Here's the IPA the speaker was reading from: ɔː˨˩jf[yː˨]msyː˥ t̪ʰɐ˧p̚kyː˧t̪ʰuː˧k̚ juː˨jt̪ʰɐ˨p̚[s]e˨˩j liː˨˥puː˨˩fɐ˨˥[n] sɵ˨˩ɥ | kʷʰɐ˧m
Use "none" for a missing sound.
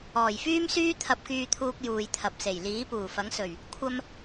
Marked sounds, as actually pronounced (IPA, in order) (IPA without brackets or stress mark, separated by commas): yː˥, s, ŋ